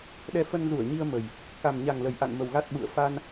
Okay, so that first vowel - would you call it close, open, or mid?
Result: mid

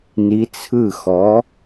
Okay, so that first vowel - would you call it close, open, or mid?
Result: close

